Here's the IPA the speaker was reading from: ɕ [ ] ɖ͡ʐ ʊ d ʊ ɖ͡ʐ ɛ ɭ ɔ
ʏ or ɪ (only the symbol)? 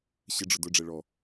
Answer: ɪ